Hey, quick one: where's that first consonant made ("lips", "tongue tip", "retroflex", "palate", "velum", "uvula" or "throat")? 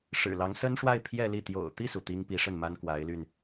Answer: retroflex